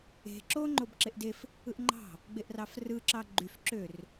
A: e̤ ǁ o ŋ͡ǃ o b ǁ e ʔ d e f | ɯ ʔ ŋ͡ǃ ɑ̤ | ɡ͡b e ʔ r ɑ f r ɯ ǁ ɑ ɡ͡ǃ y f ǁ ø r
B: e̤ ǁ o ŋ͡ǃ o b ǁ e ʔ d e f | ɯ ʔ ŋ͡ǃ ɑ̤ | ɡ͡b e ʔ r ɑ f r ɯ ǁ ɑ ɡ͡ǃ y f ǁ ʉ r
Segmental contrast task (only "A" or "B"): A